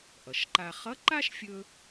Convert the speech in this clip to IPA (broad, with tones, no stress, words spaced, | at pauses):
ʔʌ˩ʃǃa˧ χʌ˧˥ǃa˥ʃfʲɵ˧